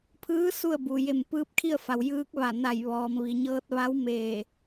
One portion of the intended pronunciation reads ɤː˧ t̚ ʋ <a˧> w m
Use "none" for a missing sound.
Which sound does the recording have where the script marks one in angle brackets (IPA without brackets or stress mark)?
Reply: a˧˥